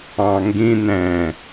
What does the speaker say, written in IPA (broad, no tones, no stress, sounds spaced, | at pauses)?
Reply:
ɑ̃ ŋ ɡ ĩ n̪ ɛ̃